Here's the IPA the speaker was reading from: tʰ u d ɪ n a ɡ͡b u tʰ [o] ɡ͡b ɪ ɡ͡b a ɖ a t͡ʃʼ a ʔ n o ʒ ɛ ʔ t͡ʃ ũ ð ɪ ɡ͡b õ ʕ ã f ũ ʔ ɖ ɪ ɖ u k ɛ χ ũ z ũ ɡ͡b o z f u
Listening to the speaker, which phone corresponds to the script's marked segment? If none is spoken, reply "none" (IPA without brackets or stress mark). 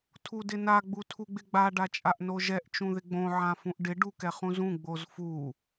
u